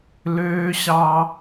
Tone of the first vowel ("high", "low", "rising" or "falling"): high